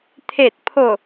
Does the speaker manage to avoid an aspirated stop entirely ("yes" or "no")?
no